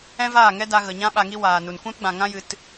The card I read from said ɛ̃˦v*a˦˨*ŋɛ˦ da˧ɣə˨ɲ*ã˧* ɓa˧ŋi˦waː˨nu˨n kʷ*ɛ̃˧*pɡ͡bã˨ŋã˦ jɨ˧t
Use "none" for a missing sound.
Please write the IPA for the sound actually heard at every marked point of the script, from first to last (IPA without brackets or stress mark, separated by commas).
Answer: aː˦˨, ã˦, ɛ̃˦